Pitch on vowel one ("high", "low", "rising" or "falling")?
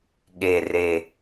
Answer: low